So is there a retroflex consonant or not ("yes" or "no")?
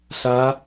no